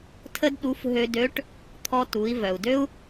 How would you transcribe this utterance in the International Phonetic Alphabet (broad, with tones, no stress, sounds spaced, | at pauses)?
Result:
tʰ ə˥ d ɗ u˧˥ f ɦ ø˧ d ø˧˥ ʈ | t̪ʰ ɔ˧ t u˩˧ i̯ v œ˩ u̯ d ø˥ u̯